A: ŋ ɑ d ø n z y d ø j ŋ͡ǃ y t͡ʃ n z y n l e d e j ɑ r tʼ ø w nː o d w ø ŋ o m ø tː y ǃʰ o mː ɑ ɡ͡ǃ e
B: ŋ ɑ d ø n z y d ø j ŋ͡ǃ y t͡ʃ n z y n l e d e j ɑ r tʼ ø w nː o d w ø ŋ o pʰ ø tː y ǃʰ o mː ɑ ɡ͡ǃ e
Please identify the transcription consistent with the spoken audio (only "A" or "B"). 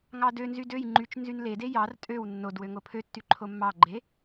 B